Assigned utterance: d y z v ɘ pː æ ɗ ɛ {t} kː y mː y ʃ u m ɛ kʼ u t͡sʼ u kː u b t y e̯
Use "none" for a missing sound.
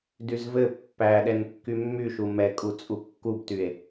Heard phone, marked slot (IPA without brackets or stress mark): n